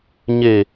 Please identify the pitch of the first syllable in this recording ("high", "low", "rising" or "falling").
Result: low